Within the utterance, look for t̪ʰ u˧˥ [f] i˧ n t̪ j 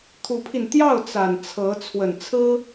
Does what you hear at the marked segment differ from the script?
yes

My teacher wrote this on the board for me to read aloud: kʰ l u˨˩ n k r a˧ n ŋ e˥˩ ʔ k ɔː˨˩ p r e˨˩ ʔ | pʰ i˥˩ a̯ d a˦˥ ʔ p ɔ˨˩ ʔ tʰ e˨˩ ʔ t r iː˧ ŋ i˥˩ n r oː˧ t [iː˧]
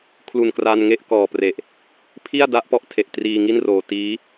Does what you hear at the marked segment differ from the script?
yes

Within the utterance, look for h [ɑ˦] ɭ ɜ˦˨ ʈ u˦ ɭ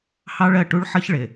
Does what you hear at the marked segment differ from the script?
no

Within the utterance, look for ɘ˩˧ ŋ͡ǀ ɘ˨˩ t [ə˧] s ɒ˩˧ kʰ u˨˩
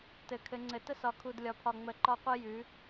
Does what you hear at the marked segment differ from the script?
no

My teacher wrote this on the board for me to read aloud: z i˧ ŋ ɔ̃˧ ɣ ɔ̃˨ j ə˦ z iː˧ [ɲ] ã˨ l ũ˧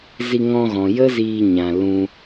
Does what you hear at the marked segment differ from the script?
no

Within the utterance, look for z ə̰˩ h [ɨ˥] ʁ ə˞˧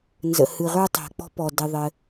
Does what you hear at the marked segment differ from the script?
yes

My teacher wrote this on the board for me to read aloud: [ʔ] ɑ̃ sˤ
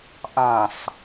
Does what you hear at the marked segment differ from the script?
no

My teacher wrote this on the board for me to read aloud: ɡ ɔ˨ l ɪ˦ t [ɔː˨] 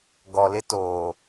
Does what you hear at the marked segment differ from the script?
yes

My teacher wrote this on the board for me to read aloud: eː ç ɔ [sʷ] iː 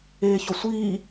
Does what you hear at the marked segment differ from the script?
no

